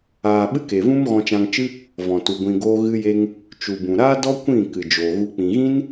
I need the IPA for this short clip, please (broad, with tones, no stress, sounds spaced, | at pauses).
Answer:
aː˧ ɓ ɨ˦ k e˨ v ũ˦ m ɣ ɔ̃˧ t͡ʃ ã˧ ŋ t͡ʃ ɨ˦ | v ɔ̃˨ t u˨ ɡʷ ĩ˧ ɡ oː˦ ɣ ɨ˦ j e˦ ŋ | t͡ʃ u˨ b ũ˨ ɾ aː˦ d ɔ˦ kʷ ĩ˦˨ k ɨ˨ d͡ʒ oː˨ ɣ u˧ k͡p ĩ˨ ɣ ĩ˦ n